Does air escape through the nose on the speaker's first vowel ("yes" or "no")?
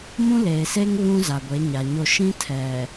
yes